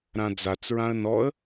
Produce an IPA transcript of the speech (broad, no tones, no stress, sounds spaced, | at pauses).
ɾ ã d͡z a t͡s ɹ ã ə̯ n ɔ ə̯